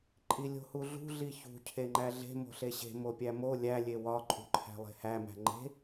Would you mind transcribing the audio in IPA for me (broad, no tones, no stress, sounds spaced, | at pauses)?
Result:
ǃʼ i lʲ o̤ h u ɮ ṳ ɮ i ç ṳ cʰ e ŋ͡ǃ æ ɮ e̤ m o̤ ɬ e ɕ e̤ m o pʲ æ m o lʲ æ lʲ e w ɒ ǃʼ ṳ ǃʰ æ̤ lˠ e̤ h æ m æ̤ ŋ͡ǃ e̤